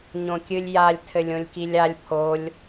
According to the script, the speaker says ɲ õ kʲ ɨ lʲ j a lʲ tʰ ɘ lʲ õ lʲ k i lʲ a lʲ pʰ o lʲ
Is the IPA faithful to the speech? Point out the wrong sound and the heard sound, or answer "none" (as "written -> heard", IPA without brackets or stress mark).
none